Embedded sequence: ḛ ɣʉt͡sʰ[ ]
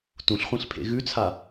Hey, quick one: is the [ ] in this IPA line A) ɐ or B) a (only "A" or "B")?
B